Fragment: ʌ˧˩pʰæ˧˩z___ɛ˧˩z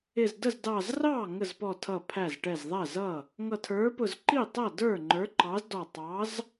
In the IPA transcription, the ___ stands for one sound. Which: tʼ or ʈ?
ʈ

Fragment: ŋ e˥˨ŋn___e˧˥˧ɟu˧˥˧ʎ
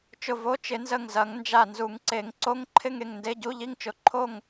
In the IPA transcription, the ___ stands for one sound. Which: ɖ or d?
d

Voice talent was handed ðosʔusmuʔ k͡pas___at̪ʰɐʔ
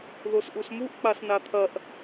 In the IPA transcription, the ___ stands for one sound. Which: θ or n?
n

